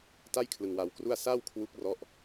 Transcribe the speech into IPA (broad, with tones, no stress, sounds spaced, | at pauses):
t a˥˩ j kʰ l ɯ˧ ŋ w a˧ w k r u˥˩ a̯ s a˥˩ w kʰ w u˦˥ k̚ r ɔ˥˩ ʔ